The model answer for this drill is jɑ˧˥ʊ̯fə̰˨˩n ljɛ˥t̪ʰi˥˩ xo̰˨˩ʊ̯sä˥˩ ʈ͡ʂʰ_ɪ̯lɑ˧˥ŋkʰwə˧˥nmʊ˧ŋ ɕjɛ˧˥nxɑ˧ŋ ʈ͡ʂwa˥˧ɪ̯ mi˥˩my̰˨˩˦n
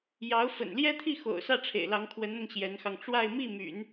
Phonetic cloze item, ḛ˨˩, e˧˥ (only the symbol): ḛ˨˩